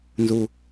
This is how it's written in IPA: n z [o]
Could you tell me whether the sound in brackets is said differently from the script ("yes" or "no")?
yes